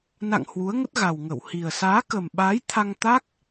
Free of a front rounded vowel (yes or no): yes